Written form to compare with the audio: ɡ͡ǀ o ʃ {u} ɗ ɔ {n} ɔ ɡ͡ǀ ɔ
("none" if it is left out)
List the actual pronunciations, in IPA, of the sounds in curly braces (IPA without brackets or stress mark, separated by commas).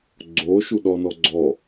u, n